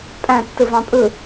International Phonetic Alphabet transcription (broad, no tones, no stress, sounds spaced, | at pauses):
pʼ æ̃ tː ɯ v ɑ̃ pʼ ɯ